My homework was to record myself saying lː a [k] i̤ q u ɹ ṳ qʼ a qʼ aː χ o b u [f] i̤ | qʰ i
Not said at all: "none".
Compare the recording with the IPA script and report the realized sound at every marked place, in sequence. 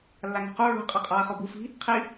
ŋ, f

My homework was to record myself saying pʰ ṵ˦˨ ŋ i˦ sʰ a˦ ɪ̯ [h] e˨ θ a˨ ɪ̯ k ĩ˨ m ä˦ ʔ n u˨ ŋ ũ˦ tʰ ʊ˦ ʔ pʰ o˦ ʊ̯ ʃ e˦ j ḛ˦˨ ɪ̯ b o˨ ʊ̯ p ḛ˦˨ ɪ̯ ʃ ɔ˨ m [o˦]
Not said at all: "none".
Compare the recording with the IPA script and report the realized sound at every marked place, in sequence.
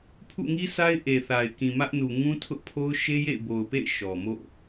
ʔ, o̰˦˨

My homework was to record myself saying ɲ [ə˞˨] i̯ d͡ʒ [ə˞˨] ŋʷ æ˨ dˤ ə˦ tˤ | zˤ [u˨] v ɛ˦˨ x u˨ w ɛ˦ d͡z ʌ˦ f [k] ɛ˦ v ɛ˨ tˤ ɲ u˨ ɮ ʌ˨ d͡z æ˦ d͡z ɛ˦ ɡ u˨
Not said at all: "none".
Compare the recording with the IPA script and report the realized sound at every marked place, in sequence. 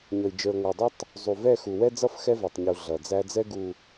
ʌ˨, ə˞˨, u˨, x

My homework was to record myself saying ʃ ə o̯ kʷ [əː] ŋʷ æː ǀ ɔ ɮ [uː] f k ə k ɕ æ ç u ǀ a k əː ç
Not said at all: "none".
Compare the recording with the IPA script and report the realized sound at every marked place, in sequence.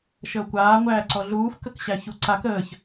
aː, uː

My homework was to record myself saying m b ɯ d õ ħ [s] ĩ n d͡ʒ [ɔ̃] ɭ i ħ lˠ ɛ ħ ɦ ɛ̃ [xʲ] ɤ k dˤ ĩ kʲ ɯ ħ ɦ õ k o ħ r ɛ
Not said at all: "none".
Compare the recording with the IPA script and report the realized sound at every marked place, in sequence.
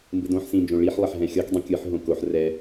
s, õ, xʲ

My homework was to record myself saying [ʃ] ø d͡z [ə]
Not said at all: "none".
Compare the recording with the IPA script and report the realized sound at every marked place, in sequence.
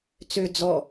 t͡s, ɔ

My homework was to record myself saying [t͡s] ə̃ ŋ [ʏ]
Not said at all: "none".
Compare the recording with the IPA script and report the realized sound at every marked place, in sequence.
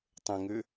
tˤ, ʏ

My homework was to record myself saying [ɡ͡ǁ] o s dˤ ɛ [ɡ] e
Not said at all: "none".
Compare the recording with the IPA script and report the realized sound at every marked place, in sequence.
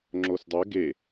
ŋ͡ǁ, ɡ

